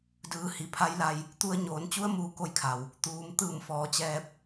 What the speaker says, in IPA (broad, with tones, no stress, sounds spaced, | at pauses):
d ɯː˩˧ h i˩ pʰ a˧˥ j l a˧ j | t̪ u˧ ə̯ ɲ oː˩˧ n t͡ɕ u˧˥ ə̯ m uː˧˩ k o˧ j kʰ a˩ w | t̪ uː˩˧ m t̪ ɯː˧˩ m f ɔː˩˧ t͡ɕ ɛː˧ p̚